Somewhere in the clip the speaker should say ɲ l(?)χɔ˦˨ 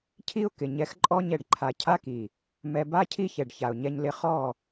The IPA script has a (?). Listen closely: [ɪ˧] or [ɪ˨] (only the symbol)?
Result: ɪ˧